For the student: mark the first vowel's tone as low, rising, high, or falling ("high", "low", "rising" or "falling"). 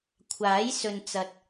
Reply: rising